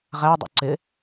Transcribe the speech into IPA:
ʁ æ dˤ ṵ ǀ ɪ

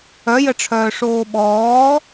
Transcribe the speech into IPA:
œ j ə ʈ͡ʂʰ œː ʂ oː ɓ ɔː

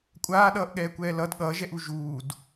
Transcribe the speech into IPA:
kʷʼ aː ɗ ʌː ʔ ɠ ɛː kʷ ɛː l ʌ d ɠ ʌː ʒ ɛ ʔ u ʒ uː d

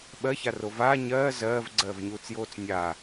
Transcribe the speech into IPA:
ɓ ɜ ç a r o v aː ɲ ɜː z ɜː v ɡ͡ǀ ɜː v ɲ uː t͡s j oː t͡s nʲ a

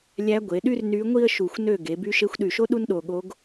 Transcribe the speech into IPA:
lʲ æ˧˥ ɡʷ e˩˧ ɗ y˥ r n y˧˥ ŋʷ i˥ ə̯ ʃ u˧˩ xʷ n ø˥˨ ɡ e˩˧ b y˧˥ ʃ e˧˥ xʷ ɗ y˧˩ ʃ o˥ ɗ u˥ n ɗ o˧˩ ɠ o˧˥ ɡ

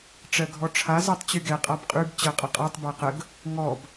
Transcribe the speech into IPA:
ʈ͡ʂ ɜ ɡʱ ɔ ʈ͡ʂʰ a z ɜ tˤ t͡ɕ y ɡ ɛ qʼ a b qʼ y b t͡ɕ ɜ qʼ ə qʼ ɜ tˤ b æ q ə ɡ | ŋ ɔ b

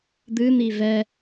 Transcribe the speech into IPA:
d̪ ɨ n̪ i v ɛ

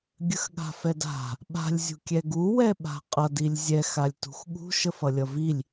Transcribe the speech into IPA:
ɡʲ ə x ɠ a̤ f ɛ d a̤ | ɓ a̤ lʲ zʲ ṳ kʲ ɛ ɡ u w ɛ ɓ a̤ qʼ ʌ d i lʲ zʲ ɛ x a lʲ t ṳ x ɠ ṳ ʃ ə f ʌ lʲ ʌ v i lʲ

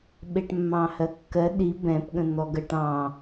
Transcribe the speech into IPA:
ɓ e ʈ mː ɑ̃ h ɜ kː ɜ ɗ i b ɛ̃ p ɠ ə̃ n̪ ɔ ɡ ɜ ʈ ɑ̃

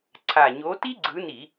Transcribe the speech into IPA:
ǀʰ a˨˩ ɲ o˨˦ t i˥ ɡ͡ǀ ɯ˨˦ n i˧˩˧

